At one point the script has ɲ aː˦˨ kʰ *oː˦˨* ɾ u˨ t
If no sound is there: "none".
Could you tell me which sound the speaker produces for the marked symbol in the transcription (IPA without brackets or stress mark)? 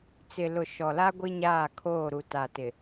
oː˦˨